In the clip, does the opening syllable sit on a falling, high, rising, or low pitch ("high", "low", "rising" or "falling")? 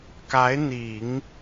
rising